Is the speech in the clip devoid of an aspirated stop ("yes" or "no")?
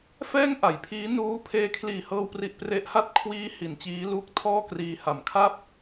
no